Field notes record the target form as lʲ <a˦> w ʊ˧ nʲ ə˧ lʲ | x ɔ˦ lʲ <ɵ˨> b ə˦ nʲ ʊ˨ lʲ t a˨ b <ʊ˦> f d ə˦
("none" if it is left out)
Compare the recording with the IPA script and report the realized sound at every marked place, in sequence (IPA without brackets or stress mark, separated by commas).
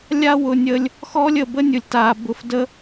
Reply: a˦, ə˨, ʊ˧